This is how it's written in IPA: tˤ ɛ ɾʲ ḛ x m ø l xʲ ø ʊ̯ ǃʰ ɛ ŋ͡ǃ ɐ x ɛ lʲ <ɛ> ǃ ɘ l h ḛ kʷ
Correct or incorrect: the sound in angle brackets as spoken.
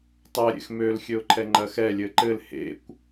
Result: incorrect: ɘ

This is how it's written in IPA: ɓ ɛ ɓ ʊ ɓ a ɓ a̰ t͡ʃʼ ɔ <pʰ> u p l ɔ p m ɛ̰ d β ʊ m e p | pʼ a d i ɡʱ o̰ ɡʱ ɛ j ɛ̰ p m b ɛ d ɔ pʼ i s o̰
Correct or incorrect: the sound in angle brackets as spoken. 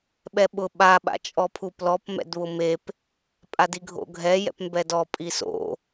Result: correct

